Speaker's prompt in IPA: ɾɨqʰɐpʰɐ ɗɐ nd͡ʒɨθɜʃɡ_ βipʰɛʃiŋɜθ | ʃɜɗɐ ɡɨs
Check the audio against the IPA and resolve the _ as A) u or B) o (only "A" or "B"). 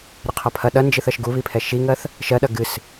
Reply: A